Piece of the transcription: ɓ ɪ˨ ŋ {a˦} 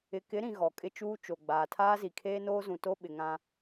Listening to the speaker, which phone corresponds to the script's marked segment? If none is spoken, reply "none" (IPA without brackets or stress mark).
ã˦